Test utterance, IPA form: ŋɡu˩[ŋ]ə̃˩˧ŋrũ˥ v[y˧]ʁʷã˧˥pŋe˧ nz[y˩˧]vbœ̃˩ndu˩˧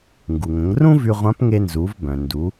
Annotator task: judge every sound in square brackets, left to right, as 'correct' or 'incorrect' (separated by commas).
correct, correct, incorrect